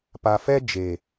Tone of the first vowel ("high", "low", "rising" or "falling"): low